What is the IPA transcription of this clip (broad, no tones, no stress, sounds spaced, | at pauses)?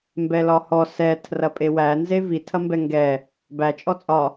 m b ɛ l ɒ h ɔ s ɛ tʰ r ɐ pʼ e w æ n z e v i tʰ ɐ m b ɛ ŋ ɡ ɛ | b æ t͡ʃʼ ɔ t͡sʼ ɒ